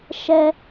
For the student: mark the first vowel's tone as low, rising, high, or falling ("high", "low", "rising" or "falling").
high